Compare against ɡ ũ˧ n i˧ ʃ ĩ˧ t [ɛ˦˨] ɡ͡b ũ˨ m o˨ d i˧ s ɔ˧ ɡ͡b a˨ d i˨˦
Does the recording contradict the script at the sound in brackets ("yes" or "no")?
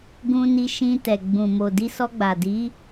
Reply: yes